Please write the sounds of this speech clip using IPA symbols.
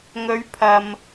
ŋ ɵ˨˧ ɥ pʰ ɐ˨ m

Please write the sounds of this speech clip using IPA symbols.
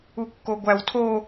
u kː o ɡʷ æ w tʰ o

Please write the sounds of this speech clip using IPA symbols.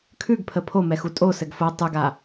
kʰ ʉ ɡ pʰ ə pʰ o m ɛ x u tʼ o s ɘ ɡ f o tˤ ʉ ɡ a

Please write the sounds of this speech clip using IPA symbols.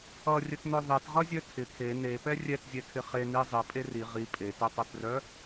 ʌ rʲ ə t n œ ðˤ e t ʁ ʌ zʲ œ tʰ ɪ kʰ e n e p ɛ rʲ ɛ t zʲ ɛ kʰ ɪ χ e n i zˤ i pʼ e r i ʁ i pʼ e t e tˤ œ t r œ

